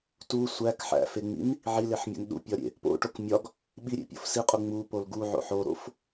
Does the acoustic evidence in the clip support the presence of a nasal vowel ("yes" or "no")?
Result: no